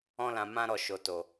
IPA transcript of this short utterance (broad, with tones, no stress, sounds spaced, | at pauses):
ɔ̃˧ l ã˨ m ã˧ ɾ ɔ˨ ʃ o˨ t o˨